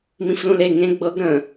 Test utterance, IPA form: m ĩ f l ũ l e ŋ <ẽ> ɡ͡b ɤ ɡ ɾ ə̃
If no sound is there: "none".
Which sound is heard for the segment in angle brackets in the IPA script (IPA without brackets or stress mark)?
ẽ